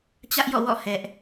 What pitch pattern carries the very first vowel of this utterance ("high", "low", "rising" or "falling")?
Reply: high